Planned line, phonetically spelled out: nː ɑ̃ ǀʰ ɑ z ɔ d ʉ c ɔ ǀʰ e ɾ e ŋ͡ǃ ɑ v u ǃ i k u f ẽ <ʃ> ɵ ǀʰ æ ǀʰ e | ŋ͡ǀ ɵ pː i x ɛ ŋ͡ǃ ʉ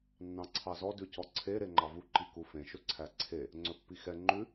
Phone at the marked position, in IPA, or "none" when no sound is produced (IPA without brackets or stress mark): ʃ